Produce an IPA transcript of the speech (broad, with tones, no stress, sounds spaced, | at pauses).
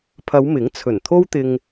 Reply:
pʰ ɐ˨˧ w m ɪ˨˥ ŋ t͡sʰ ɵ˨˩ n t̪ʰ o˥ w t̪ ɪ˧ ŋ